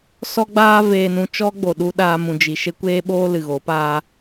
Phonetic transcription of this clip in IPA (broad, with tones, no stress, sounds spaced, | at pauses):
s ɔ˦ ɡ͡b aː˦ v eː˧ n ũ˧ t͡ʃ ɔ˦ ɡ͡b o˨ ɗ u˧ ɗ aː˧ m ũ˨ d͡ʒ i˨ ʃ e˦ kʷ eː˦ ɓ oː˦ l ɨ˨ ɣ o˨˦ p aː˦